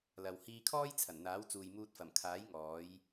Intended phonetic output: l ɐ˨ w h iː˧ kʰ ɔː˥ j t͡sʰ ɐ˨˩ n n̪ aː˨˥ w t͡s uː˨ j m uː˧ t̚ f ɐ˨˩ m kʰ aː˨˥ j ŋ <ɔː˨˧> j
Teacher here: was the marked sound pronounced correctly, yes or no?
yes